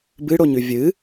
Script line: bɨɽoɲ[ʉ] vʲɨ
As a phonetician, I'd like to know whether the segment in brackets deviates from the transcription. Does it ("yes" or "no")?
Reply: no